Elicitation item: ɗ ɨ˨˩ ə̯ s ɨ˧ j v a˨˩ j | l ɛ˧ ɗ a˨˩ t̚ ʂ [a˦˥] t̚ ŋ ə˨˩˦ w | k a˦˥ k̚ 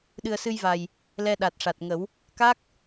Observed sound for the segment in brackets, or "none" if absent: a˨˩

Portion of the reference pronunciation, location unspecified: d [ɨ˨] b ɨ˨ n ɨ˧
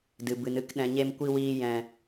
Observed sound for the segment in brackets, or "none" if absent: ɨ˨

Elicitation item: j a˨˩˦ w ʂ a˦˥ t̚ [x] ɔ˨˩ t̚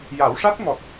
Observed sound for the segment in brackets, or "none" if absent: ŋ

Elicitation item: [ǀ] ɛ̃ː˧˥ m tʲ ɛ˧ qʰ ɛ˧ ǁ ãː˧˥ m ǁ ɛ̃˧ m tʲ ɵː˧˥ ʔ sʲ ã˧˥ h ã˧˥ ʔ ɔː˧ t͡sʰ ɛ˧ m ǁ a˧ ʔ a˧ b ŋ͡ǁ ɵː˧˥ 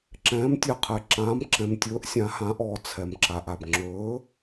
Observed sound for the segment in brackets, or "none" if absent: ǁ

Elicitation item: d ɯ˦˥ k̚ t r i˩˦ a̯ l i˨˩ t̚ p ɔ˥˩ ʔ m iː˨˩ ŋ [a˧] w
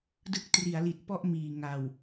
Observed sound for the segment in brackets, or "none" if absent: a˨˩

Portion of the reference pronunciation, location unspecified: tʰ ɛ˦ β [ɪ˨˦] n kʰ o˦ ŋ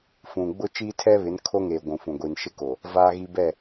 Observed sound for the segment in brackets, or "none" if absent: ɪ˨˦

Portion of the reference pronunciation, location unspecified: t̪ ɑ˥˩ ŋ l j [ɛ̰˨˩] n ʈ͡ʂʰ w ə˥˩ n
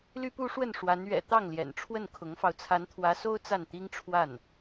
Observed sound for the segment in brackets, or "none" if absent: ɛ̰˨˩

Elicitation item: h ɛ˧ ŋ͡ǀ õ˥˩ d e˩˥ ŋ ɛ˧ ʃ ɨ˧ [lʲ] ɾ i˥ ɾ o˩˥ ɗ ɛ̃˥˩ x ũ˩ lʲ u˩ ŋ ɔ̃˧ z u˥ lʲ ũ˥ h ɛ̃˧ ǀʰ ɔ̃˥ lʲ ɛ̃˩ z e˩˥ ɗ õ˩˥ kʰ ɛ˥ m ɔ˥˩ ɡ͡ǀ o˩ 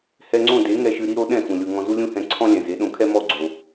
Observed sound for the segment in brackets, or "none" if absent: none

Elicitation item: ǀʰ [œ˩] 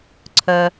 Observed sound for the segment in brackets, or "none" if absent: œ˧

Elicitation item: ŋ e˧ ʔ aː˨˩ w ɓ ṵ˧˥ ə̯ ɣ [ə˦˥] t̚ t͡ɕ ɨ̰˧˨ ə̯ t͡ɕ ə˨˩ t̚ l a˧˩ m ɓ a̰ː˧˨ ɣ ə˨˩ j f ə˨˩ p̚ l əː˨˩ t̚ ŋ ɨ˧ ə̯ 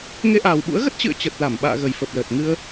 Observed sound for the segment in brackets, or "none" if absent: ə˦˥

